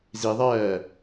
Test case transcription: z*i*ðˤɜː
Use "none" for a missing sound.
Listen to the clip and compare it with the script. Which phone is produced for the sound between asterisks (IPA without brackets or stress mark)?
i